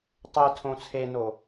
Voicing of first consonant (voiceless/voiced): voiceless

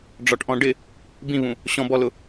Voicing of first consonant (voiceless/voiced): voiced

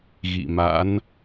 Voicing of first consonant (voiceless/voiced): voiced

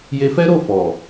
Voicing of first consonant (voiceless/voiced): voiced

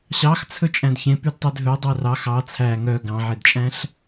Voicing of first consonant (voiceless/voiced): voiceless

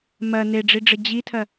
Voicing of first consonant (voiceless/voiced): voiced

